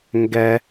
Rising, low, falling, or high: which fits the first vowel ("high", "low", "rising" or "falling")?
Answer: high